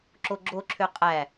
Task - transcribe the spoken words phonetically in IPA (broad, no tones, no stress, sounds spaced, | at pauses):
ǁ o ɡ͡ǁ o ǁʰ ø qʼ æ